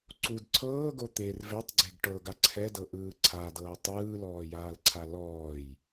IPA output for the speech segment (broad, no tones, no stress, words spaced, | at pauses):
ǀud ǀʰɤːɡo t̪er vetˤɡ͡ǀeɡ ʈɤɡa ǀʰɛdɤʔɯː ǀʰadɤː tˤɯːlɔːjaːlǀʰa lɔːj